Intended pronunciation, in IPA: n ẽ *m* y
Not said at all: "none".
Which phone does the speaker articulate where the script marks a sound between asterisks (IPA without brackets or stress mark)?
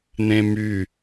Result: m